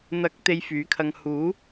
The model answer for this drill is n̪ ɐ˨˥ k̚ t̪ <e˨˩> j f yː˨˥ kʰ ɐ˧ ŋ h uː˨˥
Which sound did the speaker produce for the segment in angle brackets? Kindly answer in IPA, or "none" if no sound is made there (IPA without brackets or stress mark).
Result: e˧